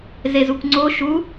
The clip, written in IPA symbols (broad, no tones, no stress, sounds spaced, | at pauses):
z e z u kʷ ŋ͡ǀ o ʃ u